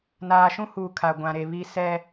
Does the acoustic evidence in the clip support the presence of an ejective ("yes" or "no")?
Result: no